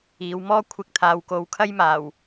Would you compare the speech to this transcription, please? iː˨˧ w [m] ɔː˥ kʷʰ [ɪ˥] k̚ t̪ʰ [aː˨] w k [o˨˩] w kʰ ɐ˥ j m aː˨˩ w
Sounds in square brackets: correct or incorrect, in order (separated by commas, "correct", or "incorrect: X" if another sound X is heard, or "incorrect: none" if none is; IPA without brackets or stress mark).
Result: correct, incorrect: ɪ˧, correct, incorrect: o˨˧